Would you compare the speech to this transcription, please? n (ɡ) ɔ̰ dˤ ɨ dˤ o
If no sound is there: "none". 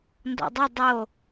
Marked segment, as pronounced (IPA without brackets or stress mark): d